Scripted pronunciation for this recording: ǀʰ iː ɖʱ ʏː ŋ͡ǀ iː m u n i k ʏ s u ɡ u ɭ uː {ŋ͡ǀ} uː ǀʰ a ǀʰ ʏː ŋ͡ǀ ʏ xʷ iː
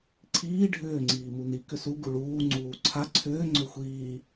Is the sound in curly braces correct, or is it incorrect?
correct